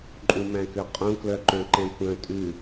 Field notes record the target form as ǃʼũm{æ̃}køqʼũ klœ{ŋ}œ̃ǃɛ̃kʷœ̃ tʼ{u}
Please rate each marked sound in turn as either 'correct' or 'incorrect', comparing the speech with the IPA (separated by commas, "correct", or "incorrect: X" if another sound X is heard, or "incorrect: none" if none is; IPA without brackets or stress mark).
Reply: correct, incorrect: ǃ, incorrect: ʉ